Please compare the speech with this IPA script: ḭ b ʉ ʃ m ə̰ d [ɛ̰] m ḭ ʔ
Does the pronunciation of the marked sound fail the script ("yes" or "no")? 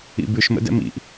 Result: no